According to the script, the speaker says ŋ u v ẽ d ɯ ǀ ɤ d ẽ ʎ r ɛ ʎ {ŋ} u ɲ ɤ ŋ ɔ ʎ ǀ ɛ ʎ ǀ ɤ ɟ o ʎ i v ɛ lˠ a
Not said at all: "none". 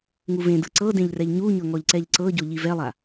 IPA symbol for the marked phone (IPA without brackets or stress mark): ɲ